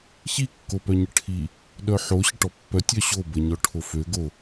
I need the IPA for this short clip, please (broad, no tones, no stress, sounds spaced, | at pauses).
ç i kː o p œ ɲ ə ʈʰ i | ɗ œ ħ o ɕ ə ʈ ɔ pː œ tʲ œ ɕ o b ə ɲ ɔ ʈʰ o f ø ɡ o